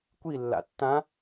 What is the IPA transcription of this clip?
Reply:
kʷ i lː a̰ tː ã

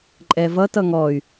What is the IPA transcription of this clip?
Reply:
ǃʼ ɛ v ʌ t ʌ ŋ ɔ y̯

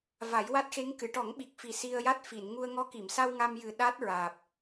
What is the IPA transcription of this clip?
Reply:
v a˨˩˦ j w a˦˥ t̚ x e˧˥ ŋ k ɨ˨˩˨ ʈ ɔ˨˩˦ ŋ ɓ i˨˩ k̚ f i˨˩ s i˧ ə̯ j a˦˥ t̚ f i˨˩˨ n ŋ u˧ ə̯ ŋ ɔ˧˥ k i˨˩˨ m s a˧ w ŋ a˧ m j ɨ˨˩ ɗ a˦˥ t̚ ɹ aː˨˩ p̚

